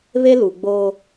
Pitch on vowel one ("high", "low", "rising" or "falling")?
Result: high